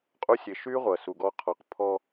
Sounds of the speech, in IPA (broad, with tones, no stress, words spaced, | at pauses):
qʼu˦sʲe˨ ʃy˦ ʁʷɐ˨su˨ɡɔ˦ qʰɒ˨qpʰɔ˦